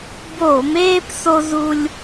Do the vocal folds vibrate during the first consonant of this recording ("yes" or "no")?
yes